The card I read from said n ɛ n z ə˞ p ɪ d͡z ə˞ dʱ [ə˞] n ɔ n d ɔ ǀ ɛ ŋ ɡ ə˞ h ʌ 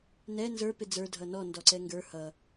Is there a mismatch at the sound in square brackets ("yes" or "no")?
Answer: yes